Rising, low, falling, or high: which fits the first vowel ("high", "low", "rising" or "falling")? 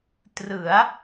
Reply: rising